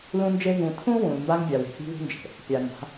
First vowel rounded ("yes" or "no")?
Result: yes